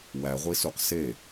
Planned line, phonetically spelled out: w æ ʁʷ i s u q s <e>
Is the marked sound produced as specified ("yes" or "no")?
yes